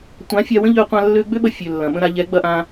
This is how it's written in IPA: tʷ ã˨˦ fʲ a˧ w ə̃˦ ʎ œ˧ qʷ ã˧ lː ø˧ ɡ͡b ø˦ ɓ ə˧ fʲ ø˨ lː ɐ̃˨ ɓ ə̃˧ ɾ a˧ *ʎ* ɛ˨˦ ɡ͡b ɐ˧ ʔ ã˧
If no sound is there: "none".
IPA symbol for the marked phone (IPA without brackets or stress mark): ʎ